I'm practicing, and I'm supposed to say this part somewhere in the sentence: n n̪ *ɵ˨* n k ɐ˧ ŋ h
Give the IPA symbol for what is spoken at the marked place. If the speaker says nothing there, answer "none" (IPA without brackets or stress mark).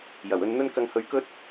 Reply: ɵ˥